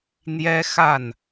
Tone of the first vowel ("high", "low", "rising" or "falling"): high